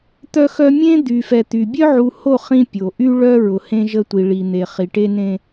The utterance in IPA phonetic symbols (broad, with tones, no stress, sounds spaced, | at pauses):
t̪ œ˦ x œ˦ mʲ ẽ˦ d̪ y˨ f ɛ˨ t̪ y˨ bʲ œ˦ ʕ u˨ h o˦˨ χ ĩ˦ pʲ o˨ ʔ y˦ ɭ œ˦ ɹ ʊ˨ h ẽ˦ ʒ ə˦ tʷ i˨ ɭ i˨ n̪ e˨ χ i˨ ʈ e˦ n ẽ˦